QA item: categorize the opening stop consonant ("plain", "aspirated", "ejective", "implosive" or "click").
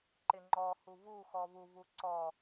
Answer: click